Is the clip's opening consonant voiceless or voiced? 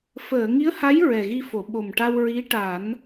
voiceless